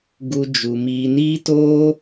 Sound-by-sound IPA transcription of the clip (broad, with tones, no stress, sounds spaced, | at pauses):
ɡ u˦ d͡ʒ u˧ m iː˧ n iː˦ t oː˦